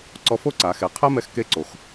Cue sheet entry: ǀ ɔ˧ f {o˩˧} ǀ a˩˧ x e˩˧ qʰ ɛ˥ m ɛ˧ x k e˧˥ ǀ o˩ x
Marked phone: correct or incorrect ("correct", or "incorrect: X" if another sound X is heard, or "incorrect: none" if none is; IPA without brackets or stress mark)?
incorrect: o˥